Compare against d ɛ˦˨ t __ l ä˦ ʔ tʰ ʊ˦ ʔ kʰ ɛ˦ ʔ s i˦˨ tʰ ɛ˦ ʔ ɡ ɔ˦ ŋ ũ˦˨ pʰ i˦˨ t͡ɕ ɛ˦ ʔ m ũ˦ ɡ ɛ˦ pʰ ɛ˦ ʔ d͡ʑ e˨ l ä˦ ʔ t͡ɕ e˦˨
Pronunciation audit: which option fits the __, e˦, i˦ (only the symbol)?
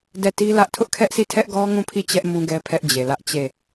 i˦